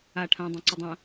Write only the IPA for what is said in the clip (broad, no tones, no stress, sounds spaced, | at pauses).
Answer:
a ʈʰ ã dˤ ẽ ǀ u dˤ ã